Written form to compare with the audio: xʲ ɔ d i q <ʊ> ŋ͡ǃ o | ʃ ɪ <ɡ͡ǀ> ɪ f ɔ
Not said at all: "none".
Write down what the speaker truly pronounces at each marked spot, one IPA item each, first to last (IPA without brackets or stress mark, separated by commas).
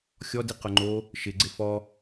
ʊ, ɡ͡ǀ